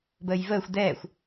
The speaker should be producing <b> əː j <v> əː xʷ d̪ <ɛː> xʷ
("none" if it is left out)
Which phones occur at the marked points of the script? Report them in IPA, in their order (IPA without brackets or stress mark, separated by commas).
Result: b, v, ɛː